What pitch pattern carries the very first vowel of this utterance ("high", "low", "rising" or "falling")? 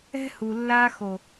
high